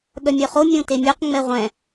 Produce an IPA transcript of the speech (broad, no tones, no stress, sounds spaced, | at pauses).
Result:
ɠ œ mʲ œ χ o mʲ õ t e mʲ ø q ŋ͡m ɛ ʁʷ ɛ̃